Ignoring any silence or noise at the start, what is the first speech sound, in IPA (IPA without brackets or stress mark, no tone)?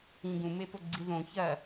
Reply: ĩ